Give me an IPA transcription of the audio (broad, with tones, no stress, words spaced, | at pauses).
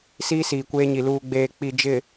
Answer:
siː˦siː˨kʷeː˦ɲi˨ luː˨ɡ͡beː˨ k͡pi˨ d͡ʒɪ˨